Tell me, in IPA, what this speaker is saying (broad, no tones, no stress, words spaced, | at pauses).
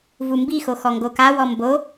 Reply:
vumbixo xɔŋɡokawɔ mbo